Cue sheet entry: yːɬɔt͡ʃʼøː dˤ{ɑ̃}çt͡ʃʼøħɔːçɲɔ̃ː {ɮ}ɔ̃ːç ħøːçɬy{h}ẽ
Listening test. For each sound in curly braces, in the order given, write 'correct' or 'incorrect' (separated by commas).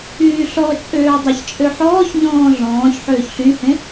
incorrect, correct, correct